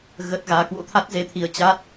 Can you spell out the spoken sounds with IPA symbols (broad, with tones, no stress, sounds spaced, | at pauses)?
ɣ ə˦˥ t̚ ɣ aː˨˦ k w o̰˧˥ t̪ʰ a˦˥ t̚ z e˧ t̪ʰ i˧ ə̯ t͡ɕ a˦˥ t̚